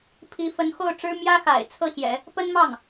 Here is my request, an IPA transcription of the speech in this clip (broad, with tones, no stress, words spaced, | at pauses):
pʰi˧˥fə˧˥n xo˥˩ʊ̯ʈ͡ʂɻ̩˥ mjä˥xa̰˨˩ɪ̯t͡sʰɤ˥˩ɕjɛ̰˨˩˦ | pə˥nmɑ˥˩ŋ